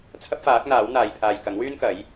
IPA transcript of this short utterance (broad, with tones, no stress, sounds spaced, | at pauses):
t͡sʰ ɐ˥ p̚ f aː˨˥ k̚ n̪ aː˨˥ w n̪ aː˨ j pʰ aː˨ j k ɐ˨˥ ŋ w yː˥ n k ɐ˨˥ j